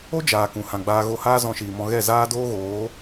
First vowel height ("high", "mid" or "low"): mid